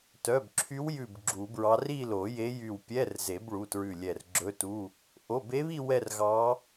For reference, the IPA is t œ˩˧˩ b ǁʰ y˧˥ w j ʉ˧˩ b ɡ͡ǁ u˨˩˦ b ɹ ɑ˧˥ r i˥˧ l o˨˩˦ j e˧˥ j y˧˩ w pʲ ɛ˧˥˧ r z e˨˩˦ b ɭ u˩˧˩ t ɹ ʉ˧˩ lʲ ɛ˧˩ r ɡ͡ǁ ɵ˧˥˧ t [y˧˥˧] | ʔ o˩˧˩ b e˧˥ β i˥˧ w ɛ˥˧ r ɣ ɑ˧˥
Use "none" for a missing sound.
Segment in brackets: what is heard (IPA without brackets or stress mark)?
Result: u˧˥˧